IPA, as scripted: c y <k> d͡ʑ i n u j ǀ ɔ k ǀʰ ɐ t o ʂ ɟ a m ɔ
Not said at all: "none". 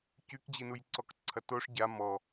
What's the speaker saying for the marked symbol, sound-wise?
k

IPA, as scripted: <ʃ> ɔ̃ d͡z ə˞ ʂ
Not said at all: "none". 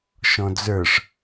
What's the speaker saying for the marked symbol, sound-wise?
ʃ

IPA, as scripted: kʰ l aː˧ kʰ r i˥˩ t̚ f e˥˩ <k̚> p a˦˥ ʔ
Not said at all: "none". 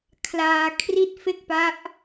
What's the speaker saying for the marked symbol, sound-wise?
k̚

